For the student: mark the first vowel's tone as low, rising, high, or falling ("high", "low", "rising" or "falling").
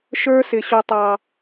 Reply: high